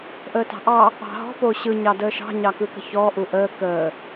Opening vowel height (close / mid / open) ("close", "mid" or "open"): mid